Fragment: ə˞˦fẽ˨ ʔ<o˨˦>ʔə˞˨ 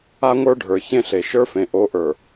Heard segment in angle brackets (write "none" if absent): o˨˦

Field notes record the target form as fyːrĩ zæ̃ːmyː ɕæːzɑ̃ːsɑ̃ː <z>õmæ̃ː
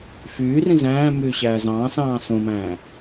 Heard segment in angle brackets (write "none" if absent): s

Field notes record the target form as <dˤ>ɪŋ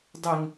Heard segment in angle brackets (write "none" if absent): dˤ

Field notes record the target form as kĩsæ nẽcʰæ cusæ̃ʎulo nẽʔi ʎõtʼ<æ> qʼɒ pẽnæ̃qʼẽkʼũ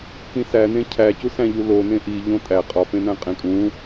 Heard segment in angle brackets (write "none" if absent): æ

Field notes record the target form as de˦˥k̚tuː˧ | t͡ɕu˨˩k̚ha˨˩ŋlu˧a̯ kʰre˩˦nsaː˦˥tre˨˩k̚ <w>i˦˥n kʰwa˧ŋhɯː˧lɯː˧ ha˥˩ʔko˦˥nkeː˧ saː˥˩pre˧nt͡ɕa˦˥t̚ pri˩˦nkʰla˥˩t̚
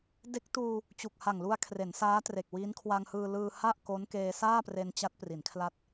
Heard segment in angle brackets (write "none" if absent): w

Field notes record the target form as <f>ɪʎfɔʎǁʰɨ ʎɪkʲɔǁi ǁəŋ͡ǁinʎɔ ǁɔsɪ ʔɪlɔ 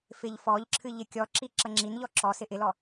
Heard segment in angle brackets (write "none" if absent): f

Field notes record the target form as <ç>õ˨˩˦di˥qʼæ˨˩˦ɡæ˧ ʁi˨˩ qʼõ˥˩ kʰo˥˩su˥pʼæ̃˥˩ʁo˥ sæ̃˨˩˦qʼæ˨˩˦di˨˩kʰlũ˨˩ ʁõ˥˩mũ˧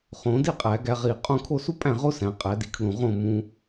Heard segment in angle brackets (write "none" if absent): χ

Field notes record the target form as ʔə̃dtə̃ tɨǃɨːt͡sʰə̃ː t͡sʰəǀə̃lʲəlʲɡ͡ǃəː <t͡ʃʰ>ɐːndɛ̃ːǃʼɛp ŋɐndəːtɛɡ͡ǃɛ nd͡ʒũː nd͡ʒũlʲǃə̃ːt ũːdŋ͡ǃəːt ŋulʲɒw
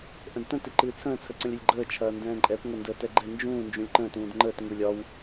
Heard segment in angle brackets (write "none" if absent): t͡ʃʰ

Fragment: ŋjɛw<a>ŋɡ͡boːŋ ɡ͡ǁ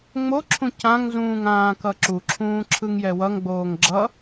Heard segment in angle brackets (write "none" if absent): ʌ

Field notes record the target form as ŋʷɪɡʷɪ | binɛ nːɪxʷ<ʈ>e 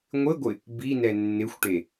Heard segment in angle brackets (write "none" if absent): ʈ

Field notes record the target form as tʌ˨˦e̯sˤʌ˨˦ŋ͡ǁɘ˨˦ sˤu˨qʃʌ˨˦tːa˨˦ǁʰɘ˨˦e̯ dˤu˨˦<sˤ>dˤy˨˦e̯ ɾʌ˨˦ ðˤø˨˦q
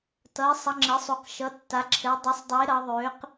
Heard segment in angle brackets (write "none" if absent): sˤ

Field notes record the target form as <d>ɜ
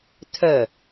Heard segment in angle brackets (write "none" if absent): tʰ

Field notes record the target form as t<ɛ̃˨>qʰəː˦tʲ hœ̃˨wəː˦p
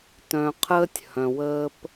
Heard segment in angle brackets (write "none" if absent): œ̃˨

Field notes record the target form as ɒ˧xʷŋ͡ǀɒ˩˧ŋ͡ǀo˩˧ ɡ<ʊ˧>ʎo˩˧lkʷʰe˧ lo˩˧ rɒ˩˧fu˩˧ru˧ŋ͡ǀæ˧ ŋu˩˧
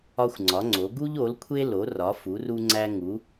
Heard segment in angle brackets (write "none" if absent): u˧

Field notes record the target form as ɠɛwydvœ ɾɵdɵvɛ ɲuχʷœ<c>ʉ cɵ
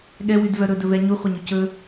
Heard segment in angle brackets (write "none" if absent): ɲ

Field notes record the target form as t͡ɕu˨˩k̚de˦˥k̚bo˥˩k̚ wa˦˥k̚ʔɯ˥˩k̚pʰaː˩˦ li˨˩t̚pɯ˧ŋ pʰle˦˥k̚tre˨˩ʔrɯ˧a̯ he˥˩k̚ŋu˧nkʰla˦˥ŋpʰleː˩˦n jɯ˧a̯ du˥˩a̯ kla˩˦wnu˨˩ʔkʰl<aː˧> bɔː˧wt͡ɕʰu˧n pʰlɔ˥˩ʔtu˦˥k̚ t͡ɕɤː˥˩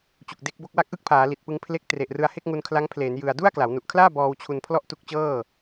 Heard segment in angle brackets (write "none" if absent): aː˥˩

